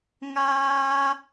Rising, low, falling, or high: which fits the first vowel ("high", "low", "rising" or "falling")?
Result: high